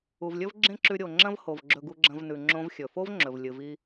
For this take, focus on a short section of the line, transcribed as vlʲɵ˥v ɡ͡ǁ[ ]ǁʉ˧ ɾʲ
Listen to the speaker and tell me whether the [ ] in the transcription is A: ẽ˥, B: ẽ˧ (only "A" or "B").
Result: A